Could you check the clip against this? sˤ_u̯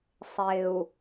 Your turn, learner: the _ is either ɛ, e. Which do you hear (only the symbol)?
e